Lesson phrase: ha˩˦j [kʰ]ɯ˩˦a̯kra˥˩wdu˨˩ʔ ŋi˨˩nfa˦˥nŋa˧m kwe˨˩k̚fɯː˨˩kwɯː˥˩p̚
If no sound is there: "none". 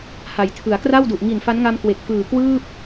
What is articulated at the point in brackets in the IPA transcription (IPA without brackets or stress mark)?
tʰ